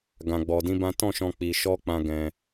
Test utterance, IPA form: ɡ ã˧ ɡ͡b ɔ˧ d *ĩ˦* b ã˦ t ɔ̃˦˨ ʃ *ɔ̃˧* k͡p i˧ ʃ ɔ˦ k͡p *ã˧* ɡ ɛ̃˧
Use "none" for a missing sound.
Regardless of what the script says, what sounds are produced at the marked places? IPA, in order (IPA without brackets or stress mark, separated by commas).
ĩ˦, ɔ̃˧, ã˧